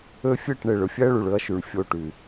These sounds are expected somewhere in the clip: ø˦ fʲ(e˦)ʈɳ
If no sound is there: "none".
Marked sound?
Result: e˦˨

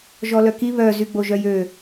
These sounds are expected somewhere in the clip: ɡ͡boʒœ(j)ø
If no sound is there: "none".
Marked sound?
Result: j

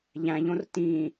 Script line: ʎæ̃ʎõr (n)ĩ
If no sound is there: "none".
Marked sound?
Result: t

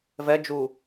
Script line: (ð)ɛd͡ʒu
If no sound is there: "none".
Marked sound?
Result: v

